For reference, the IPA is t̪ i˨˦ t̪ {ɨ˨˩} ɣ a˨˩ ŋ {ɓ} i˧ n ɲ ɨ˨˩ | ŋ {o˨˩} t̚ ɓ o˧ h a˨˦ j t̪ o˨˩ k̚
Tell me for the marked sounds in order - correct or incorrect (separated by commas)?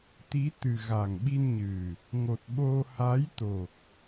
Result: correct, correct, correct